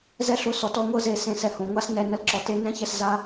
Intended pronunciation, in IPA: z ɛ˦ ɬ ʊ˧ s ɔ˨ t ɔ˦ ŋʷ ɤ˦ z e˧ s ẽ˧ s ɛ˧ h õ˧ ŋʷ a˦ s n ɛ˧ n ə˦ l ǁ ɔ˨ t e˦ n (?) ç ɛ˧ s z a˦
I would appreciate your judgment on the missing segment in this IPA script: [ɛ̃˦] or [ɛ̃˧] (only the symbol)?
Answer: ɛ̃˦